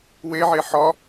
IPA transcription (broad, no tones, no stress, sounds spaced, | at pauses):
w e ʕ e ħ ɒ